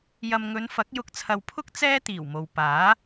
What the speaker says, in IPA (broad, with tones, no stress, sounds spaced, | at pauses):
j ɐ˨ m ŋ ɵ˨˧ n f ɐ˨˥ k̚ j ʊ˨ k̚ t͡sʰ ɐ˨ w pʰ ʊ˥ k̚ t͡s ɛː˥ t̪ iː˨˩ w m o˨ w p aː˨˥